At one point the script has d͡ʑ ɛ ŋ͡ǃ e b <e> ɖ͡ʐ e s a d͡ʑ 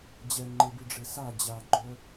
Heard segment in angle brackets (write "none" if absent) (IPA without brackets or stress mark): i